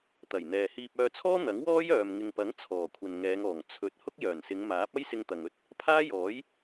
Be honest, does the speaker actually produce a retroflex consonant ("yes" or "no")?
no